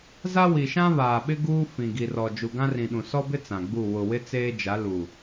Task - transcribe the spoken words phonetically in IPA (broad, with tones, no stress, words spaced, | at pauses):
za˦ wi˨ʃã˦ βaː˨ɓɪ˦ ɡuː˦ fĩ˨ɡi˨rɔ˨ d͡ʒu˨ɡã˦rĩ˨ɗũ˨ sɔ˦bɪ˦ t͡sã˨ɡ͡bu˦˨ wʊ˨wɪ˦t͡seː˦d͡ʒa˨˦ lu˨